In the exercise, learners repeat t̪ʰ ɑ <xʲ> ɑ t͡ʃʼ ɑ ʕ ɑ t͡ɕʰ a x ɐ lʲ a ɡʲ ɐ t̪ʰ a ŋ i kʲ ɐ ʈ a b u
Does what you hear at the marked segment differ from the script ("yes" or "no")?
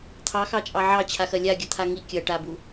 yes